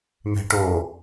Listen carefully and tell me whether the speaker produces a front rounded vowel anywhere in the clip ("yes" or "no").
no